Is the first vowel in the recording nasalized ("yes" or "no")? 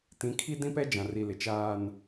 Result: yes